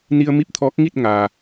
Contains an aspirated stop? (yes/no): yes